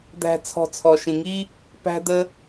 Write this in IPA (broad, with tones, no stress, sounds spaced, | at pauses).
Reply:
d̪ æ̤˨ t͡sʰ ɔ̤˨ t͡sʰ ɔ˩ ʃ ĩ˩ ŋ i˦ | p æ̤˦ d̪ ə˦